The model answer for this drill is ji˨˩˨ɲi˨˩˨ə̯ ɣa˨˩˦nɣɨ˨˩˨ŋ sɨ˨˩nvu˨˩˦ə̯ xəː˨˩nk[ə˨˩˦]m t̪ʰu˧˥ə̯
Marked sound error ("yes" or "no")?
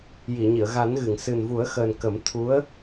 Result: no